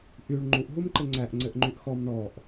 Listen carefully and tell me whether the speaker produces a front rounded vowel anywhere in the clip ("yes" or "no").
yes